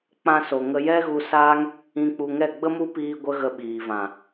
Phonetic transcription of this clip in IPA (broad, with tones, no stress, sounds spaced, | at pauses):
k͡p ã˧ s o˨ ŋ ə˧ j ɛ˦ ɣ u˧ s aː˦ ŋ | ĩ˧ k͡p u˧ ŋ ɛ˦˨ ɡ͡b ə˦ m u˦ p iː˧ ɡʷ ə˦ ɣ ə˧ ɓ iː˨ v ã˨